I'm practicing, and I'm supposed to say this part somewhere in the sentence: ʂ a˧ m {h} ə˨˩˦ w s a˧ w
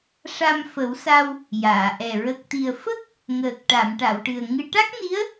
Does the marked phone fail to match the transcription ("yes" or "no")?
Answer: yes